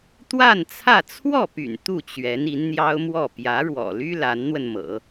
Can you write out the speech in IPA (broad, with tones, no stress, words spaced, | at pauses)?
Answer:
t̪wa˥˧nt͡sʰä˥˧ t͡sʰwɔ˥˩py̰˨˩n t̪u˥˩t͡ɕɥɛ˧˥n i˧˥nn̪jɑ˥ʊ̯mwɔ˥˩ pjä˧˥ɻwɔ̰˨˩ly˥ la˧˥nn̪wə˧nmɤ̰˨˩˦